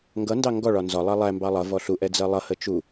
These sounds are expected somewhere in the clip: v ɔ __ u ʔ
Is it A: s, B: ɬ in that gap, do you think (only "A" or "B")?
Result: B